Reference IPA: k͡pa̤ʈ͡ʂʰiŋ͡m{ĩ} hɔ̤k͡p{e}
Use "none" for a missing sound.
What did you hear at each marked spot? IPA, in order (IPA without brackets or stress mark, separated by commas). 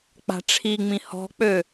ĩ, ø